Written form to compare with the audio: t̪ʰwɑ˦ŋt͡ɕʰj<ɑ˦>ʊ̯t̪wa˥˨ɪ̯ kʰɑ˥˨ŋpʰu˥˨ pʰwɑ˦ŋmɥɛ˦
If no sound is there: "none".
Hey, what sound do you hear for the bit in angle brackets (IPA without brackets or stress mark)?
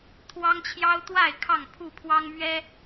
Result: ɑ˦